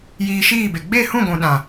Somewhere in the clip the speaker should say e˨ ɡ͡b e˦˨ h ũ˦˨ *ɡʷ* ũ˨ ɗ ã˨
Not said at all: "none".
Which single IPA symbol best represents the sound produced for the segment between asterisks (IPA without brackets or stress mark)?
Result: ɡʷ